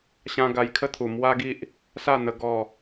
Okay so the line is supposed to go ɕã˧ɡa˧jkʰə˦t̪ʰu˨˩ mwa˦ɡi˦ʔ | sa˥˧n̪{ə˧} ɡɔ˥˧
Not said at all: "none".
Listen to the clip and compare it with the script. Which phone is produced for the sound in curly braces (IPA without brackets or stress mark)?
ə˧